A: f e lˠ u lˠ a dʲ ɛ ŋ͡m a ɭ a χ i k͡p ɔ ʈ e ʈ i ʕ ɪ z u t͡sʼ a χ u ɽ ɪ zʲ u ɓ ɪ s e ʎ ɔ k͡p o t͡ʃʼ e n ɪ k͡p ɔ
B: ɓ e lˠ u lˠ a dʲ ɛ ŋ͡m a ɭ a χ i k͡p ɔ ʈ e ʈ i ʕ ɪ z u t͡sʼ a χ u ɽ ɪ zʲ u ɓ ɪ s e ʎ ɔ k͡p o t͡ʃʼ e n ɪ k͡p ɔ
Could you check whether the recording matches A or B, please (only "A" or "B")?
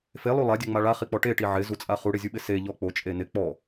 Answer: A